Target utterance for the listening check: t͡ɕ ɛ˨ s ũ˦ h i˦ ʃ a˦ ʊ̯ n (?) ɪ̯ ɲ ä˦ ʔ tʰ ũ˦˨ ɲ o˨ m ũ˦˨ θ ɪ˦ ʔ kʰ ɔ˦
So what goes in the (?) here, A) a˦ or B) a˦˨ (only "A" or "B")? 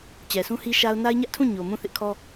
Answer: A